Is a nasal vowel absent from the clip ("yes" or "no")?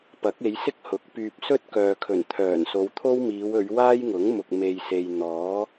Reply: yes